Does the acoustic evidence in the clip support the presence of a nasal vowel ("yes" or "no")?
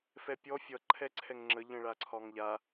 yes